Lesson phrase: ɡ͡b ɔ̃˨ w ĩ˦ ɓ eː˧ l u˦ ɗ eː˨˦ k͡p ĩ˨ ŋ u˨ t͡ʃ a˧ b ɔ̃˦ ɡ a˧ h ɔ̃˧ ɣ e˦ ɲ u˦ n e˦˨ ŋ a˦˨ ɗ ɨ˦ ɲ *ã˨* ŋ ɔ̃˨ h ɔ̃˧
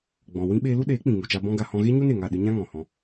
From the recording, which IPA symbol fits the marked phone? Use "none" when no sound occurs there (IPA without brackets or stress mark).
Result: ã˦